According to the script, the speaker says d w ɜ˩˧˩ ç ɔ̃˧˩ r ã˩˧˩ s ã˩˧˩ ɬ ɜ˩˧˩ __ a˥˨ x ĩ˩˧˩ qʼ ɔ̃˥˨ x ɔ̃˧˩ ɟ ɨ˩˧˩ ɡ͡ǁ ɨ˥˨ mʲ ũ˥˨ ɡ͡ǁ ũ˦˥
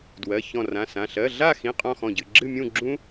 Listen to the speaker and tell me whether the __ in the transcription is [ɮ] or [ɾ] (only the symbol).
ɮ